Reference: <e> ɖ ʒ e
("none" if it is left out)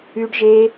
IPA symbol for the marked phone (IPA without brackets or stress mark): y